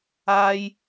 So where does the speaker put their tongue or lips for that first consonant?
palate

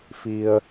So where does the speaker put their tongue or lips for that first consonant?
lips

